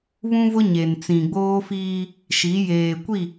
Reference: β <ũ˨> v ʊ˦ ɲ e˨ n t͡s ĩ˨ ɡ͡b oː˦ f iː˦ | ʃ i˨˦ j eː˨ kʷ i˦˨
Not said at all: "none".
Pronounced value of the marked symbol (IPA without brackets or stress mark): ũ˦